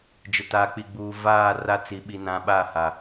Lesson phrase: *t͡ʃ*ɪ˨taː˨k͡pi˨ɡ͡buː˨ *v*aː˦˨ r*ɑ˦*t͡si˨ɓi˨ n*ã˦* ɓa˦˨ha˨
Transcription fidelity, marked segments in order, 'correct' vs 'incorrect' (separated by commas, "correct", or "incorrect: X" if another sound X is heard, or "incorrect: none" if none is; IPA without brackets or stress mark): incorrect: d͡ʒ, correct, incorrect: a˦, incorrect: ã˨